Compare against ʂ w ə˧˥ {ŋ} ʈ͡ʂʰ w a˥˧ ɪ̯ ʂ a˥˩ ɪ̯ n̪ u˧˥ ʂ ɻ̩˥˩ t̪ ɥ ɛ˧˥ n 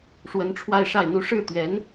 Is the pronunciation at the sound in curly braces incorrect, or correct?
incorrect